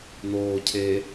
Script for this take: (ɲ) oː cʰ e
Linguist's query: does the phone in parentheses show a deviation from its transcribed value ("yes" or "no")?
yes